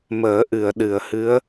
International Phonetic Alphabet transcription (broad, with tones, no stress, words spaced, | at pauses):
məː˨˩˦ ʔɨ˨˩˨ə̯ɗɨ˨˩˨ə̯hɨ˧˥ə̯